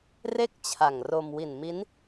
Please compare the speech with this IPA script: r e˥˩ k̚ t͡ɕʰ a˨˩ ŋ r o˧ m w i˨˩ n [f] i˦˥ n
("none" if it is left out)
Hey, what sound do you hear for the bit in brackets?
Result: m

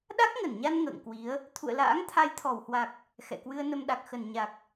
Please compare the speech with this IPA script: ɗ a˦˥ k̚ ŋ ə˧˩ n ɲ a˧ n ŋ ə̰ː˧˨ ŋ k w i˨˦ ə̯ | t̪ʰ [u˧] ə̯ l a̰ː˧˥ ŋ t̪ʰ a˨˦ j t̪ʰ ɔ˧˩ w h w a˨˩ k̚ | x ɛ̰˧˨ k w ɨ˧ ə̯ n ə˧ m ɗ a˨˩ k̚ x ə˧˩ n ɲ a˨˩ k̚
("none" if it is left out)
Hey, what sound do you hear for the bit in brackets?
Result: ṵ˧˨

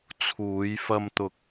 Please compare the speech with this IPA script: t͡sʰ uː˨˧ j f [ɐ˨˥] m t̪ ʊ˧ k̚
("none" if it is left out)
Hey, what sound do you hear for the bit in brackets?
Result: ɐ˧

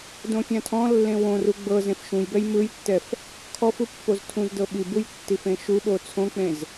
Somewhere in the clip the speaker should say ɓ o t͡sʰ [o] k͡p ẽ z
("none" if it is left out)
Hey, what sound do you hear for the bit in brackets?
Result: õ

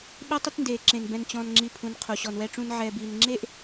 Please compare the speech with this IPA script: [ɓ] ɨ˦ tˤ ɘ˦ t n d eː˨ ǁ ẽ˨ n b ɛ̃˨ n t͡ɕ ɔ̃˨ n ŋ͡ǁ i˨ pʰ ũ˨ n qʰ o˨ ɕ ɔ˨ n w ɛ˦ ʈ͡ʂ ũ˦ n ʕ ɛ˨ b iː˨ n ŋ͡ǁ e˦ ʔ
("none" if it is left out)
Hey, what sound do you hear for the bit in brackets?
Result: ɓ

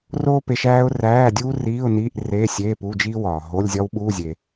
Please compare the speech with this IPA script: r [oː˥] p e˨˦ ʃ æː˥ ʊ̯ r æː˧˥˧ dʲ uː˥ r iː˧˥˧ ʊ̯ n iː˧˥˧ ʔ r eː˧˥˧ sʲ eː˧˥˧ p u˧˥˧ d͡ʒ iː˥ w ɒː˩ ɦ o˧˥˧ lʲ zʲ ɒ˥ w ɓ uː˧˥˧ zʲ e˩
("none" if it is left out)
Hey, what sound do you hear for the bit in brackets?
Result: oː˥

